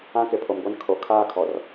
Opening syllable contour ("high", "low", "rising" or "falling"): high